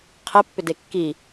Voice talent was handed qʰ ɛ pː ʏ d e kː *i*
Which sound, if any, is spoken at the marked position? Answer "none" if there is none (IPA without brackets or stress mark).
i